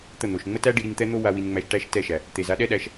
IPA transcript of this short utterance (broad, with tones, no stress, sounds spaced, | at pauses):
t̪ ə˦˨ n̪ o˨ ʃ ŋ͡m ə˦ t æ˦ ɖ i˧ ɾ i˧ ŋ t̪ ɛ˦ n̪ o˦ w a˧ w i˧ n ŋ͡m æ˧ ʃ ʈ æ˦ ʃ t ɛ˦˨ ʃ æ˨ | t̪ e˨ z a˨˦ ɗ ɛ˦ ɗ æ˧ ʃ